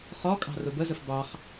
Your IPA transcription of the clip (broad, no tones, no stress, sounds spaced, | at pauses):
χ ɔ kʼ ɑ̤ r ʊ b ə z ə f b ɑ χ